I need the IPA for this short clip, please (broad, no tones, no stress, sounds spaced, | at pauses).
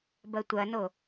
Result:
b ɐ tʷ ɐ n o